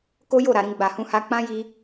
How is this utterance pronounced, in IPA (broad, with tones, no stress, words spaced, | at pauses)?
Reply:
ko˦jo˦˨ ɾa˨ɾĩ˧ ɡ͡ba˨hũ˧ha˧ k͡pã˦ji˧